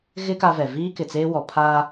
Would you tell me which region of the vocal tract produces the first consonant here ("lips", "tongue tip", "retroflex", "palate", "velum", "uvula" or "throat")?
velum